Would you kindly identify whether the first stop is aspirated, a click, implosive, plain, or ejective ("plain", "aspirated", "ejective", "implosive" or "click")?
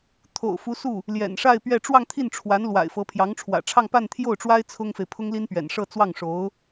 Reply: aspirated